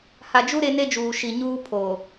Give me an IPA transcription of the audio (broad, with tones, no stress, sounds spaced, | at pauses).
h a˨ d͡ʒ u˦ ɾ e˦ n e˦ d͡ʒ uː˨ ʃ i˨ ɲ uː˦ pʰ o˨